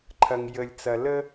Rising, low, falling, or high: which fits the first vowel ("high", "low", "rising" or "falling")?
low